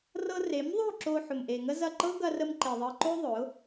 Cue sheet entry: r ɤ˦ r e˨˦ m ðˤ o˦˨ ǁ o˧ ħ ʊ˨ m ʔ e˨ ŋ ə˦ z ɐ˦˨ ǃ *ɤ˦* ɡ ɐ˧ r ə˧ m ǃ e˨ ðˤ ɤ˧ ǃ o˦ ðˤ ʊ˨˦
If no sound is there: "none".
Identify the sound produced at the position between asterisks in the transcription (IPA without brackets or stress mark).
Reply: ɤ˦